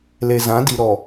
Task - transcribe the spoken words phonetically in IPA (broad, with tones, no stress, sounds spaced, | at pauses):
l e˨ z ã˨˦ d i˨ ɾ ɔ˨